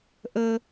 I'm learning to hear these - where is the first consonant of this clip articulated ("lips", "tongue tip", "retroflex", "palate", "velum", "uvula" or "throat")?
throat